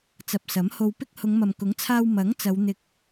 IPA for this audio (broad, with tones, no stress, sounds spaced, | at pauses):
t͡s ɐ˨ p̚ s ɐ˨˥ m h o˧ w p ɪ˥ k̚ h ʊ˨˧ ŋ m ɐ˨ m k ʊ˨˥ ŋ t͡sʰ aː˧ w m ɐ˨˥ ŋ t͡s ɐ˨˧ w n̪ ɪ˧ k̚